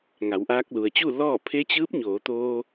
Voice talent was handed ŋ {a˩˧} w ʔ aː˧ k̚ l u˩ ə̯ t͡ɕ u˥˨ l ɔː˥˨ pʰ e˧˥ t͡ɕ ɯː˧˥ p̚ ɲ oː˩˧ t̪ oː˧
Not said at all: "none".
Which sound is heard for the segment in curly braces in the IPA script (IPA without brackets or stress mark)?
a˩˧